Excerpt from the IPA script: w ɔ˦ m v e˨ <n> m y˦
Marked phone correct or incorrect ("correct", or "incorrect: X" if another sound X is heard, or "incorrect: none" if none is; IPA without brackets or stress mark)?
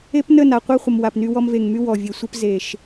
incorrect: ŋ